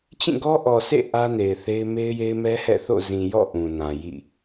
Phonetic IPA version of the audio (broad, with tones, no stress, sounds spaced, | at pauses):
t͡ɕ ĩ˦˨ ɡ ɔ˦ ʔ ɔ˨ s ḛ˦˨ ʔ ä˦ n e˨ ɪ̯ θ e˦ ɪ̯ m e˦ ɪ̯ j e˦ ɪ̯ m ɛ˦ h ɛ̰˦˨ θ o̰˦˨ z ĩ˨ j ɔ̰˦˨ ʔ ũ˨ n ã˨ j ḭ˦˨